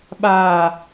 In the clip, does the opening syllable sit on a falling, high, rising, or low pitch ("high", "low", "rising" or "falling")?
low